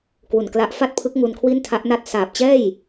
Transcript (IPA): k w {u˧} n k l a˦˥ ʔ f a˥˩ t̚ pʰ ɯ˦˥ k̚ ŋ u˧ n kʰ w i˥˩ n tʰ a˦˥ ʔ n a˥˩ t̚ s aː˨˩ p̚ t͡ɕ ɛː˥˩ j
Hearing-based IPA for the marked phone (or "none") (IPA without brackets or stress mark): u˨˩